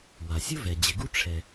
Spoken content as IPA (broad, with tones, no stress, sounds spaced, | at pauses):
w a˩ sʲ ʊ˥ v ɛ˩ d͡ʑ ɪ˨ ɡ u˥ ʈ͡ʂʰ ɛ˨